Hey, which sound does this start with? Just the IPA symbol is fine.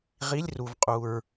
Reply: ʁ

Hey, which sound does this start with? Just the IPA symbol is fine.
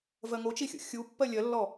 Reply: v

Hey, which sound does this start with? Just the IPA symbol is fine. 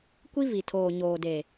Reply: kʷ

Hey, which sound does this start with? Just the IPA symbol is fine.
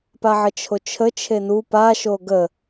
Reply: p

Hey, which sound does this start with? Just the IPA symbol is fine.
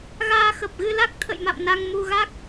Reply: ɣ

